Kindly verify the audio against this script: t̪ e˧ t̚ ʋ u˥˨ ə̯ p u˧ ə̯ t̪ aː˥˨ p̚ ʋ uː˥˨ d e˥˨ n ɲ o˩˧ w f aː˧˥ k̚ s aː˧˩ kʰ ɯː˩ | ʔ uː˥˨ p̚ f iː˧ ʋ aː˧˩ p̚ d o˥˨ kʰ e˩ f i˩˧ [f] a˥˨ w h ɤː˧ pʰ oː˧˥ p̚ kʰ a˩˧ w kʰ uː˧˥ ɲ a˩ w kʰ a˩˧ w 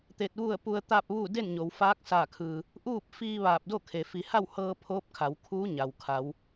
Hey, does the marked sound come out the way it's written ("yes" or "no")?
no